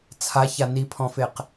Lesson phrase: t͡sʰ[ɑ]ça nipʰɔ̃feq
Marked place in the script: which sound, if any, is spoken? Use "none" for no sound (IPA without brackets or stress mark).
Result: a